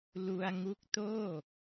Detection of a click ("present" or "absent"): absent